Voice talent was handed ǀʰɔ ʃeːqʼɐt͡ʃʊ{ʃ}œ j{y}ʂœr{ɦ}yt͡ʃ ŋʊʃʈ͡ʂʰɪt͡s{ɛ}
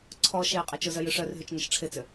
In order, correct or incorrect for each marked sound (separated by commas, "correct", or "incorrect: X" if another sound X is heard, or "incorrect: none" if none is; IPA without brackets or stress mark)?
incorrect: z, incorrect: ʏ, correct, incorrect: ʏ